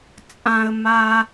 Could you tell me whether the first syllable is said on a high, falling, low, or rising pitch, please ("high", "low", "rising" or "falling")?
high